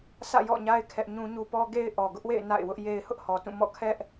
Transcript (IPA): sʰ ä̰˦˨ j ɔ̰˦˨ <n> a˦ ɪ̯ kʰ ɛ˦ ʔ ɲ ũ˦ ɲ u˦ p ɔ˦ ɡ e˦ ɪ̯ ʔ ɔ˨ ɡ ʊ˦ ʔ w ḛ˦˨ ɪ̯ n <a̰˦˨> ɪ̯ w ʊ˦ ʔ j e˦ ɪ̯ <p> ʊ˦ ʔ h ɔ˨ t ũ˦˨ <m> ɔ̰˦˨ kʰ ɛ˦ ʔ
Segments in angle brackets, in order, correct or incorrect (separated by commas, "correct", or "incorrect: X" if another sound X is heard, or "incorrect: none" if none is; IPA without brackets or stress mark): incorrect: ɲ, correct, incorrect: h, correct